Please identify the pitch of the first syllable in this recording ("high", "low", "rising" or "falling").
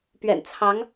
low